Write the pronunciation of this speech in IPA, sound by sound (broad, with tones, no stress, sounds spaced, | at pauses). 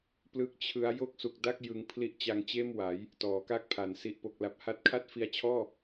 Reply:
p l ɯ˥˩ k̚ t͡ɕʰ ɯ˦˥ a̯ j o˥˩ k̚ s u˨˩ k̚ d a˥˩ k̚ j ɯ˧ ŋ pʰ l i˦˥ ʔ t͡ɕ a˧ ŋ t͡ɕ eː˥˩ m w a˩˦ j | t ɔː˩˦ k a˦˥ k̚ pʰ a˩˦ n s i˨˩ ʔ p o˨˩ k̚ l a˨˩ p̚ h a˦˥ t̚ kʰ a˥˩ t̚ f i˧ a̯ t͡ɕʰ ɔː˥˩